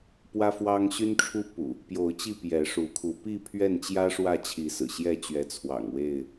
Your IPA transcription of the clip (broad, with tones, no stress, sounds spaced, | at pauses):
p w ä˦ f w ɑ˦ ŋ ɕ y˦ n ʈ͡ʂʰ u˦ p ṵ˨˩ | p j o˨˦ ʊ̯ t͡ɕ i˥˨ p j ɛ˨˦ ʂ u˨˦ kʰ u˨˦ p i˥˨ pʰ ɥ ɛ˥˨ n t͡ɕ j ä˦ ʂ w ä˥˨ t͡ɕʰ i˨˦ s ɹ̩˨˩ ɕ j ɛ˥˨ t͡ɕ ɥ ɛ˨˦ t͡sʰ w ɑ̰˨˩ ŋ w e˥˨ ɪ̯